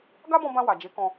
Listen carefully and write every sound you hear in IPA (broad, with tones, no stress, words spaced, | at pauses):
ɡa˦bɔ̃˧bã˧ wa˨d͡ʒe˨˦kɔ̃˧